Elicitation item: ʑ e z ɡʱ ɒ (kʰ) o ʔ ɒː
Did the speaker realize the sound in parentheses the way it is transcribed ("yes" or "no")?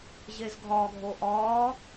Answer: no